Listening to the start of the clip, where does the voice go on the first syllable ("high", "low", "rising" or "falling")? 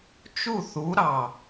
falling